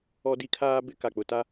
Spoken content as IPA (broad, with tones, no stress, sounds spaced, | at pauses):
ɔ˦ d i˦ kʰ aː˦ b ɪ˦ k a˨ k͡p ʊ˨ t a˦